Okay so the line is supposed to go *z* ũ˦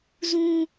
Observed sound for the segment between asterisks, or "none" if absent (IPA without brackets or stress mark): z